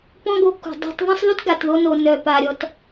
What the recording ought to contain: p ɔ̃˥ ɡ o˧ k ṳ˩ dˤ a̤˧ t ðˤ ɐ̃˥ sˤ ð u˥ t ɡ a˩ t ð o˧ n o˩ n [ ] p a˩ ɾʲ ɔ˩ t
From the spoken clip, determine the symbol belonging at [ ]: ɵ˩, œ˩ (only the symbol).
œ˩